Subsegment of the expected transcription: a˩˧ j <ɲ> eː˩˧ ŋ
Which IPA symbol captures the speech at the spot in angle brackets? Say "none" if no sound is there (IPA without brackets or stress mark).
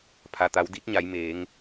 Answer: m